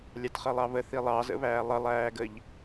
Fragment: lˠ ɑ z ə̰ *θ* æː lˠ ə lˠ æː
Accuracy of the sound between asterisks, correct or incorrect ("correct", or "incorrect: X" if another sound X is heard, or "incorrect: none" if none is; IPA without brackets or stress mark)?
incorrect: β